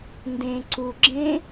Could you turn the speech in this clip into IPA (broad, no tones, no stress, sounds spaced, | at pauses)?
n d ẽ ǀ u ɡ͡ǁ ẽ